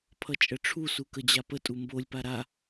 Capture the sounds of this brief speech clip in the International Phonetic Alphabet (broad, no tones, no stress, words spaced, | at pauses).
pʰʌt͡ʃʼəʈ͡ʂʰusu kəd͡ʑapətʼu mbolʲpa ɾa